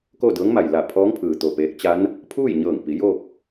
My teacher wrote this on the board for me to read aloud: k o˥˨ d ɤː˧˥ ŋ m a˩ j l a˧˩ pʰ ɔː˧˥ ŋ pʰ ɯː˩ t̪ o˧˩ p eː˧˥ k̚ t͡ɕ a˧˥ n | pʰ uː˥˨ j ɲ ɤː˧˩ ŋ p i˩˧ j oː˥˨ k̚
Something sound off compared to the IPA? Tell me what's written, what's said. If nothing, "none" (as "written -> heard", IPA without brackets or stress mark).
none